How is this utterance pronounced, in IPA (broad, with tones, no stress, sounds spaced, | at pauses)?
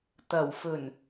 t̪ ɐ˨˩ w f ɵ˨˩ n